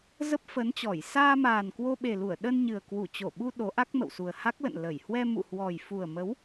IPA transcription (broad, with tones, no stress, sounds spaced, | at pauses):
z ə˦˥ p̚ f ə˨˦ n t͡ɕ ɔ˧˩ j s aː˧ m aː˨˩ n k w o˧ ɓ e˨˩ l u˧˩ ə̯ ɗ ə˧ n ɲ ɨ˨˩ ə̯ k w u˧˩ t͡ɕ o˧˩ ɓ u˧ ɗ o˨˦ ʔ a˦˥ k̚ m ə̰˧˨ w s u˨˩ ə̯ h a˦˥ k̚ l ə̰˧˨ n l ə˧˩ j h w ɛ˧ m ṵ˧˨ h w ɔ˨˩ j f u˨˩ ə̯ m ə˨˦ w